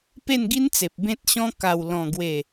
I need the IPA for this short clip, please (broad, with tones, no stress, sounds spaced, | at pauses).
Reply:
p e˥˧ n ɡ i˦ n t͡s e˨ p̚ b ẽ˦ t̚ ɕ ɔ̃˦ k a˨˩ w l ɔ̃˨˩ ɡ w e˨˩